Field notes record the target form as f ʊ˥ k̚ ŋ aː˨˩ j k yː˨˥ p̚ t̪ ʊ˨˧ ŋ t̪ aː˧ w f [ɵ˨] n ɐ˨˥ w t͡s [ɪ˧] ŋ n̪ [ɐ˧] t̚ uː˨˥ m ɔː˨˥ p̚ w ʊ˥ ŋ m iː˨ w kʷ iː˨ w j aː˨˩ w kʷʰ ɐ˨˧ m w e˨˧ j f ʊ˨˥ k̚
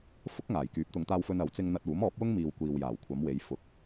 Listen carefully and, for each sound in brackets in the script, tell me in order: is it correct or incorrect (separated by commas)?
incorrect, correct, correct